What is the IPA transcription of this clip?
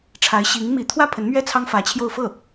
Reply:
ʈ͡ʂʰa˧˥ɪ̯ɕi˧˥ŋmi˧˥ t̪ʰwä˥˩pʰə˧˥nmɥɛ˥˩ t͡sʰɑ˥ŋfä˧˥t͡ɕʰjo˥˧ʊ̯ fɤ˥˩

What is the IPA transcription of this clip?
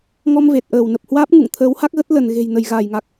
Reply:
ŋɔ˧m ve˨˩t̚ʔəː˧˩wnə˨˩p̚ hwaː˦˥p̚ ŋṵ˧˨ŋ t̪ʰəː˨˦wha˦˥k̚ɣə˦˥t̚ lə˧˩nɣe̤˨˩j nə˧˩jɣaː˧˩jŋa˨˩k̚

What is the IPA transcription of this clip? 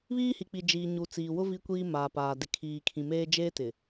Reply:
βiː˦hi˨k͡pi˨ d͡ʒiː˨ɲu˨t͡siː˨wʊ˦ vi˦kʷiː˦maː˨paː˨ dɪ˨kʰiː˨kʰĩ˨meː˦ d͡ʒeː˦tɪ˨

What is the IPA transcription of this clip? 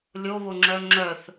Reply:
lʲoβoŋ͡ǁœ ŋ͡ǁœθ

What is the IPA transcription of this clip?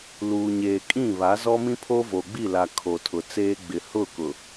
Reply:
luː˨ɲeː˨kʼĩ˦˨ βa˨˦zɔ˦mĩ˦pʰo˦ vo˨ɡ͡bi˦˨la˨ kʰo˨tʰʊ˨t͡seː˦ ɡ͡bɪ˨hʊ˦˨ kʊ˨

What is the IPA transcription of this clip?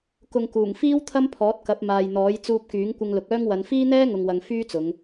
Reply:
kʊ˨ŋkuː˨˩ŋfiː˥w t̪ʰɐ˥mpʰɔː˨˥t̚kɐ˨˥p̚ maː˨jn̪ɔː˨˥j t͡suː˧p̚kyː˨˥ŋkʷɪ˧ŋlʊ˨k̚ œː˥ŋwɐ˧n fiː˥n̪ɛː˥ŋʊ˨ŋwɐ˨ŋ fyː˥t͡sʊ˨˧ŋ

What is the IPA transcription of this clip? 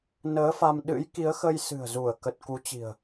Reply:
nəː˨˦fa˧m ɗɨ̰˧˥jki˨˦ə̯xə˧jsɨ̤˨˩ə̯ zu˧˩ə̯kə˨˩t̚ ku˨˦t͡ɕi̤˨˩ə̯

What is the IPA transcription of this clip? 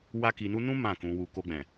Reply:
wa˦ki˧nu˦ nũ˦ mã˦˨kũ˧wu˧ ko˧ɡ͡bɛ̃˨

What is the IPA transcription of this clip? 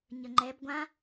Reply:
ɲəŋ͡ǃɛb ɡʷã

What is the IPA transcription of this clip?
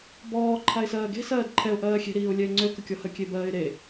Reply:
bɔː ǃʰaɪ̯sɜːɡe̤ sɜːdǃʰɛʊ̯ ʔɜːxʲe̤ ɾiːʊ̯lʲɛɪ̯ŋ͡ǀø kəkʲɔhə kʲebɜːɪ̯ɾe

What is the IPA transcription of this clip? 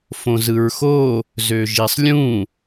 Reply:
fõzɯɹxo | zøʒisˤlʲũ

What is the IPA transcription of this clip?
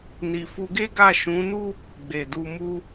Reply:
ni˨fu˧ɡe˦ɡa˦˨ ʃũ˨˦nu˦ | ɡ͡be˨du˧mu˦

